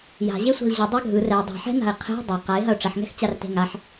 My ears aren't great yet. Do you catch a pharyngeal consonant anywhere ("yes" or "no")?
yes